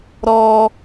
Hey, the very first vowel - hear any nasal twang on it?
no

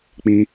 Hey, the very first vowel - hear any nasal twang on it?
yes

